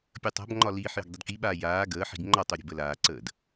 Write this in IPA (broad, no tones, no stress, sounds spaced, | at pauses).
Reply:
pʲ əː tˤ a̤ b ŋ͡ǃ ɒ l iː ħ j ə̤ ɡ dˤ ə d k i ɓ aː j aː ɡ əː ħ i̤ ɡ ŋ͡ǃ ɒ tˤ o ɾʲ ə̤ b ə l aː ǀ əː d